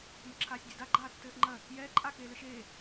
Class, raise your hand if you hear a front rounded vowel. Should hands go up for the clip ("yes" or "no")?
no